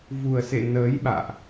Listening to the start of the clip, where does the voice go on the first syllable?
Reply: low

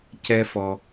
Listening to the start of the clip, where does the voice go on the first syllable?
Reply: high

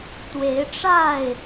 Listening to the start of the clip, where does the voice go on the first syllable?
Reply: rising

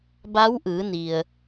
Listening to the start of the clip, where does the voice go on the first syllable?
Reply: rising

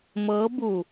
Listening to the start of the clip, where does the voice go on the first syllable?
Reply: rising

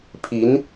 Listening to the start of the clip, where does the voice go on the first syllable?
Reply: rising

